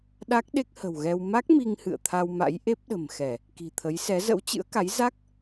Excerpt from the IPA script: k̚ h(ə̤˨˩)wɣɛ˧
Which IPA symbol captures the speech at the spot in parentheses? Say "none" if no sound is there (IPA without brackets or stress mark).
ə̤˨˩